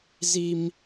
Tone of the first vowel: high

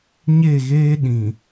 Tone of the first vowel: falling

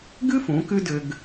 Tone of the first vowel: high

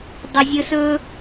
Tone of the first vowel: low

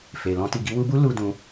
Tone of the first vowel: low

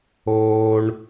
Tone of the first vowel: high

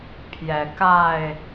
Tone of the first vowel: low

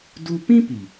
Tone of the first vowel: high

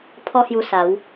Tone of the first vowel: high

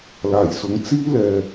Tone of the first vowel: low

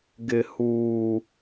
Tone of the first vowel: low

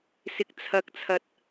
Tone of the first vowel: low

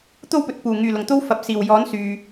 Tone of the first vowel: high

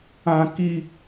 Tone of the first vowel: high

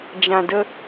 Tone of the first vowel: low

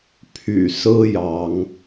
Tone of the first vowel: low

